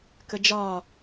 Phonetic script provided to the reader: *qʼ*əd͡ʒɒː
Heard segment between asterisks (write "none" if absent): k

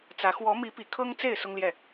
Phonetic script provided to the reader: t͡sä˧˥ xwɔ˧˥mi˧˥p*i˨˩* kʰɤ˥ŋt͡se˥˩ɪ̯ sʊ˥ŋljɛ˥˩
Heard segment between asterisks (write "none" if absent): i˨˩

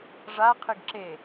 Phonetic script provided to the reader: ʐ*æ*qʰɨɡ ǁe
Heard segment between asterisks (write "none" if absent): a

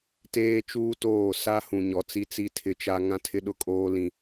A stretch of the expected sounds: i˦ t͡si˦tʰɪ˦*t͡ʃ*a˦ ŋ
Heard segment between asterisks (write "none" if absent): t͡ʃ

